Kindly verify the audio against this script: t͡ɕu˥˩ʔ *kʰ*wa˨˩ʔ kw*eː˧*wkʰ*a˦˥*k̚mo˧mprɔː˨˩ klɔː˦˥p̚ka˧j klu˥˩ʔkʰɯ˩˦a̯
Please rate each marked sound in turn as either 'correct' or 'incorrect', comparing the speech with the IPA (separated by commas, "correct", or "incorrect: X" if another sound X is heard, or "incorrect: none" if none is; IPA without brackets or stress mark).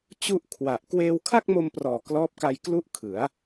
correct, correct, incorrect: a˥˩